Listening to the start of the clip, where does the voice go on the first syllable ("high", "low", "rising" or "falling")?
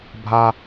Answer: high